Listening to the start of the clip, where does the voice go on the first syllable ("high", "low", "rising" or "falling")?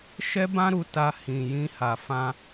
high